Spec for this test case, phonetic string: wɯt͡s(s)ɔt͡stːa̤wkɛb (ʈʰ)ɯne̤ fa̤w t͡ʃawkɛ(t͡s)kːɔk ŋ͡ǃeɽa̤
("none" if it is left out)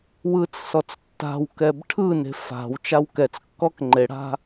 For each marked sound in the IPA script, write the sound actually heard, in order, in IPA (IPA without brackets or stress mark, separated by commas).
s, ʈʰ, t͡s